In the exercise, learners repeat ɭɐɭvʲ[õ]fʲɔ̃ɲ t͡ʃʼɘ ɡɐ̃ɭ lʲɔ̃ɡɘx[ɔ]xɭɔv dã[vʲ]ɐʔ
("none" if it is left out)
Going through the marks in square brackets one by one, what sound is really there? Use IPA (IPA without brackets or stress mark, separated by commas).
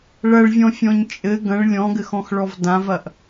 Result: ɔ̃, ɔ̃, v